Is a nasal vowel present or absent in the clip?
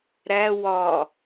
absent